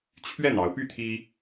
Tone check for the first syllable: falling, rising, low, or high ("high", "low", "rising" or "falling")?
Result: falling